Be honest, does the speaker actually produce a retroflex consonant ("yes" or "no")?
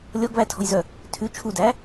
no